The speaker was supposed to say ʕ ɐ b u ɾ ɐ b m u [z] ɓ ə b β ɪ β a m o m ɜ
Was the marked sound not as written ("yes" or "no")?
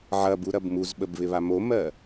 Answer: no